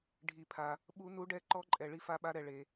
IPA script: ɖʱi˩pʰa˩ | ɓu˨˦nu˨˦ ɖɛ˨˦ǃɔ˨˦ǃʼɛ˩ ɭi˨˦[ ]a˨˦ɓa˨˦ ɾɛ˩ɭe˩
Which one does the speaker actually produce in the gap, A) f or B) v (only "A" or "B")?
A